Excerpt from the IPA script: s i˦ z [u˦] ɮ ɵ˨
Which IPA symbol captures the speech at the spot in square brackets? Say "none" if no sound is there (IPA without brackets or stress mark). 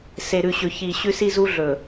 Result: u˦